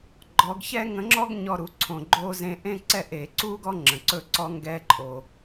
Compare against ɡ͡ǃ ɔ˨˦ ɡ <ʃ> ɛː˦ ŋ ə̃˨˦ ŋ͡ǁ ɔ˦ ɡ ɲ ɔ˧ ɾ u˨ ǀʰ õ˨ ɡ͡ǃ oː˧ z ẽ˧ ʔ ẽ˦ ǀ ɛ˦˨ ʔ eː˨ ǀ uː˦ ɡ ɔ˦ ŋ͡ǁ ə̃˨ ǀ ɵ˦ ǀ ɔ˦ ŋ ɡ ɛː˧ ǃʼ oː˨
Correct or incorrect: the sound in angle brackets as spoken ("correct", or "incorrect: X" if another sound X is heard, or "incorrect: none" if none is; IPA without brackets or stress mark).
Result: incorrect: ç